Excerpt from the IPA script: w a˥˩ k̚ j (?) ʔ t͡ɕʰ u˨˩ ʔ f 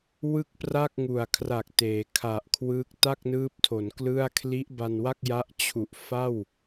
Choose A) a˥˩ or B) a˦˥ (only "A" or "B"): B